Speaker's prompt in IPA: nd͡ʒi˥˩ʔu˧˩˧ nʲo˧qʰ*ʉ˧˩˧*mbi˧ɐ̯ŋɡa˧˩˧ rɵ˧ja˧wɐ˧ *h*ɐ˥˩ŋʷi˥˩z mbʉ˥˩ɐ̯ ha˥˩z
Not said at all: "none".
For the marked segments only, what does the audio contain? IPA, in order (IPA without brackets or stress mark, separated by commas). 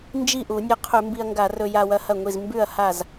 ʉ˧˩˧, h